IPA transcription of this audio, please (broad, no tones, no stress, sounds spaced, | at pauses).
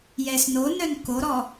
j ɛ s n o n œ n k o ɾ ɔ